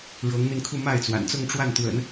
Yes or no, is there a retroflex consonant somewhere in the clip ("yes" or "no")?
yes